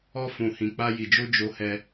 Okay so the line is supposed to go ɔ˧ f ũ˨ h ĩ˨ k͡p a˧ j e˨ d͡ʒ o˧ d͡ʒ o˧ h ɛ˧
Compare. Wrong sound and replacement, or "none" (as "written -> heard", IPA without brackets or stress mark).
e˨ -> i˨